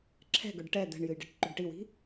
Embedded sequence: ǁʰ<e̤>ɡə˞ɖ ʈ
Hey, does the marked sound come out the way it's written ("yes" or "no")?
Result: no